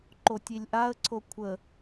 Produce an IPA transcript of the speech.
ǃotʲilʲʔaə̯ǀʰo kʷʰə

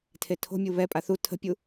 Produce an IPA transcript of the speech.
tʰetʰo̤mʲu βɛpʼa θu tʰə̤pʲu

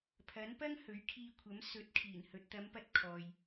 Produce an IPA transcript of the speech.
pʰɐ˨˥npɐ˥ŋ hɵ˨˥ɥkʰiː˧kʷʰɐ˨˥m sɵ˨˥t̚ kʰiː˨˩nhɵ˨t̚t̪ɐ˨˧mpɐ˧t̚ kʰɔː˨j

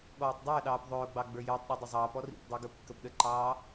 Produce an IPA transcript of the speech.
ɠɔːtˤdˤəːɗɑːp ðˤʊːɡ͡bɑ ɡ͡bə˞jəːtˤɗi dˤʊzˤɑːpɔ rḭpdˤi ɡə˞pkːəpɗəǃɑː

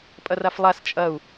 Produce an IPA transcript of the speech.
pʼɐraflˠas t͡ʃʼɐu̯

